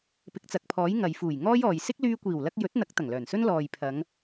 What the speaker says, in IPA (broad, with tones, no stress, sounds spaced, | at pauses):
p ɪ˨ k̚ t͡s ɐ˨ k̚ pʰ ɔː˨˥ j ŋ ɐ˨ j f uː˨˩ j ŋ ɔː˥ j ɔː˨ j s ɪ˥ k̚ l yː˧ kʷ iː˨˩ w l ɐ˧ k̚ j ɵ˨˥ t̚ n̪ ɐ˨˥ k̚ t̪ ɐ˨˩ ŋ l œː˨˩ n s ɵ˥ n l ɔː˨ j pʰ ɐ˨˧ ŋ